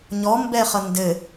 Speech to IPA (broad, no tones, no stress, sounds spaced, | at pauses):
ɲ ɔ m b ɛ χ ʌ n d ɘ